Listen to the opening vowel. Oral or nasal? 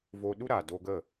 oral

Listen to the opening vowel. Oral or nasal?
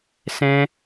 nasal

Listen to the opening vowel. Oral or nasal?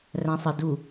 nasal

